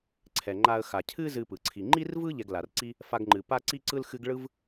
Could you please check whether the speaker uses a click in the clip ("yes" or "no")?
yes